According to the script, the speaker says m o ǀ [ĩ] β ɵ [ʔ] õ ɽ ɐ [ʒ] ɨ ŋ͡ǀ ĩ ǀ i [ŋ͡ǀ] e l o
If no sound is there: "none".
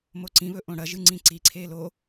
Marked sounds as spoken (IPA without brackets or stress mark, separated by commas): ĩ, ʔ, ʒ, ǀʰ